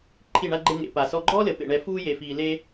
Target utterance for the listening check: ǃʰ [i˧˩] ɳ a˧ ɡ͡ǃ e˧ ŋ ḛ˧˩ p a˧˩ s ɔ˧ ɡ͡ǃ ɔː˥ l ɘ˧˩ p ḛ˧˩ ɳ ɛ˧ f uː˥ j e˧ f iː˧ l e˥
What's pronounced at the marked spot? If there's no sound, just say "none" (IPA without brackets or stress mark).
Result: i˧˩